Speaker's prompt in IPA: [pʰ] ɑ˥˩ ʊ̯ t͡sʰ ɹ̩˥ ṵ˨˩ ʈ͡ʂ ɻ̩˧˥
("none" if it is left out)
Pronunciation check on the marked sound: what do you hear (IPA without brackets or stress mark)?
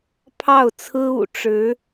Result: pʰ